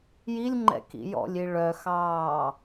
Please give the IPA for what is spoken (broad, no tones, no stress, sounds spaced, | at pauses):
j i lʲ ŋ͡ǃ ɛ̰ k ḭ j ɔ̰ lʲ i ɭ œ x ɑː